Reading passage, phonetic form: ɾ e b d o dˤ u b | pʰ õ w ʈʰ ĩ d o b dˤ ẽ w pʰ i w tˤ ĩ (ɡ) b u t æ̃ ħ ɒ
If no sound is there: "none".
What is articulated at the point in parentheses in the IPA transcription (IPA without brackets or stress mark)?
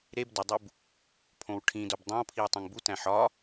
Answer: ŋ